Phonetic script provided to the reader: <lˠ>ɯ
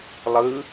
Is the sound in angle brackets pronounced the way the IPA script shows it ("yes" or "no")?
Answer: yes